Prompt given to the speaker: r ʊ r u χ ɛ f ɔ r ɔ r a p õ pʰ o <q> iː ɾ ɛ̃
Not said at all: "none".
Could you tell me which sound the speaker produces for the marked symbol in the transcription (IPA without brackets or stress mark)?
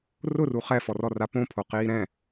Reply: q